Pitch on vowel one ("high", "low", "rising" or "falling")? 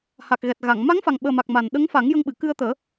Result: low